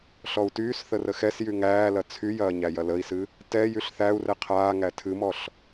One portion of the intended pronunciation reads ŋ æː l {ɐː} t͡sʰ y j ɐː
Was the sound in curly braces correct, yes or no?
no